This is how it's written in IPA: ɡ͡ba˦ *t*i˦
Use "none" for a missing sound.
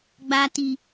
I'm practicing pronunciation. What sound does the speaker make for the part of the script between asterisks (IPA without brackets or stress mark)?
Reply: t